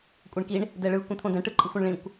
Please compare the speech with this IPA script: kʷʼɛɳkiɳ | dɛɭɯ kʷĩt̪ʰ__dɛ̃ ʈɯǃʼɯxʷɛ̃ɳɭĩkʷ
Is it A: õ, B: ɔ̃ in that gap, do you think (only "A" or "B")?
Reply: A